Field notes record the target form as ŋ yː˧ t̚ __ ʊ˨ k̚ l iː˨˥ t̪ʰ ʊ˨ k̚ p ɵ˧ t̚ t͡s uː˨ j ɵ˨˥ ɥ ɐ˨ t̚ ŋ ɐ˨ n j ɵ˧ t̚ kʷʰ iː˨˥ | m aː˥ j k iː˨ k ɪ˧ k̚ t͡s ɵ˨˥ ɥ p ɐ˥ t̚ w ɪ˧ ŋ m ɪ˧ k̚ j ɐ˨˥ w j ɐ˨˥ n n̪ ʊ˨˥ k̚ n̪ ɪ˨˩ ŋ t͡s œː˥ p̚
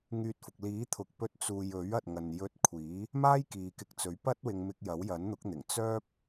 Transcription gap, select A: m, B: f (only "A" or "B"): B